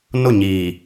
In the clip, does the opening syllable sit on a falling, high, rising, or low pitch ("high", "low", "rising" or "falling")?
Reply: falling